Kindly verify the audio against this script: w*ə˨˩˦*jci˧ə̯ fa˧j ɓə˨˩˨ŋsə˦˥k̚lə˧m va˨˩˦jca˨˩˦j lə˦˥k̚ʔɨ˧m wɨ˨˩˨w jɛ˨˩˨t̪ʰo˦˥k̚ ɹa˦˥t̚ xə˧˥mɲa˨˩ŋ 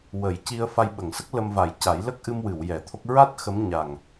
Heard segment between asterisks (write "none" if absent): ə˨˩˦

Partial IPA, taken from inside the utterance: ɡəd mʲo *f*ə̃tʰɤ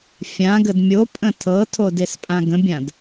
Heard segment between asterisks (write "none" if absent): pʼ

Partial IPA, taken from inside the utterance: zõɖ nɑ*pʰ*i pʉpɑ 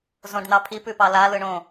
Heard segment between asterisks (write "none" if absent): pʰ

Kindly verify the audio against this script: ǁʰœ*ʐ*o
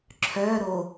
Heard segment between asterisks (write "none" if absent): ɾ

